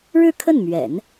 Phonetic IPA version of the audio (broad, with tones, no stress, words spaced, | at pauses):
ɻɻ̩˥˧kʰə˥˩nmɥɛ̰˨˩˦n